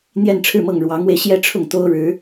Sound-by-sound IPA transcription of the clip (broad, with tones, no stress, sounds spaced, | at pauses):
n̪ j ɛ˥˧ n ʈ͡ʂʰ ɻ̩˥˧ m ɤ˥˩ ŋ ɻ w ɑ˧˥ ŋ w e˧ ɪ̯ ɕ j ɛ˥ ʈ͡ʂʰ ʊ˥˩ ŋ t̪ o˥ ʊ̯ ɻ ɻ̩˧˥